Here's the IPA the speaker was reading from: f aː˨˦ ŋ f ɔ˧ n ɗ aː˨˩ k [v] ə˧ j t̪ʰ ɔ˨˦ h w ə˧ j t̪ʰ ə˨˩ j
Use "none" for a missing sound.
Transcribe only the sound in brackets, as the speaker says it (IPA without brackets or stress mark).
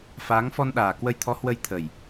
w